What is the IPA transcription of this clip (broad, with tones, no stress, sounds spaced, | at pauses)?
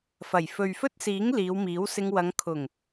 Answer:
f ɐ˨˩ j f ɵ˨ ɥ f ɵ˥ t̚ s iː˨˥ ŋ l iː˨˧ w m iː˨˥ w s ɪ˧ ŋ w ɐ˨˧ ŋ kʰ ʊ˨˩ ŋ